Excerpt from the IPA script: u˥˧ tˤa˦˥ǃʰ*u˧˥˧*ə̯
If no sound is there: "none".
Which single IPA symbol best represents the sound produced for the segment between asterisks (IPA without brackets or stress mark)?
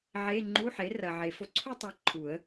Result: u˨˩˦